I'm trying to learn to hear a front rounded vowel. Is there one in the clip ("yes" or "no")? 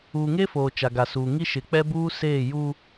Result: no